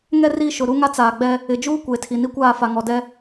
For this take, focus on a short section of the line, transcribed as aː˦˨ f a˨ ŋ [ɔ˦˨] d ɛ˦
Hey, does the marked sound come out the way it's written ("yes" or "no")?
no